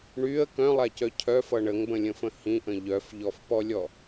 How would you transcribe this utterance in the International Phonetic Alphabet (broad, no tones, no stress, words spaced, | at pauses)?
ɳyə̯ kœ̃lˠacœ cʰœfʌ ɳəŋbə̃lʲə̃fə̃ hĩʔə̃ ʎœfʎɔfpɔlʲɔ